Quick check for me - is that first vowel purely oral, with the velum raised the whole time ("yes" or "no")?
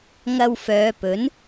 yes